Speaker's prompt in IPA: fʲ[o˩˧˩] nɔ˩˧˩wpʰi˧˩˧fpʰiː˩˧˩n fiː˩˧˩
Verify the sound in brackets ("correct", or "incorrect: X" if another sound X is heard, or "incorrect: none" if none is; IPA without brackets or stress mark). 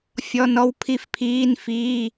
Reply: incorrect: ɔ˩˧˩